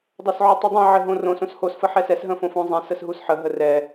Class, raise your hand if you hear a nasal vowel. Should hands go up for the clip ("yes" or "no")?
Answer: yes